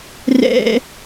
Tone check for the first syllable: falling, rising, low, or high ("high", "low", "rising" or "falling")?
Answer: high